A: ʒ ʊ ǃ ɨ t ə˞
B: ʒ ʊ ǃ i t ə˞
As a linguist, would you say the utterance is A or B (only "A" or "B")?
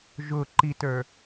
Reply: B